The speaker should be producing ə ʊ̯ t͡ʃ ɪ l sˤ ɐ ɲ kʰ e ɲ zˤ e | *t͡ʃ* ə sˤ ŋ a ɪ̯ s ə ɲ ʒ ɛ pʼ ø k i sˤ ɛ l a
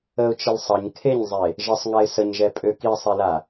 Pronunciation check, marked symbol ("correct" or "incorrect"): incorrect